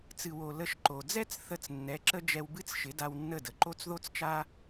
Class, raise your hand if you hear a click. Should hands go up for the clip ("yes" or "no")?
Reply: yes